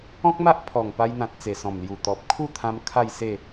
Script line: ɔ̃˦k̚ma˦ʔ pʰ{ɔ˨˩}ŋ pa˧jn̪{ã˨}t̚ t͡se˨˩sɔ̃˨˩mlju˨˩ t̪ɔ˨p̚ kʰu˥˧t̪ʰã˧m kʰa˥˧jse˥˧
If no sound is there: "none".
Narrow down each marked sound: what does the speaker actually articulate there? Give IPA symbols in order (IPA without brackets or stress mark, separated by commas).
ɔ˨˩, ã˨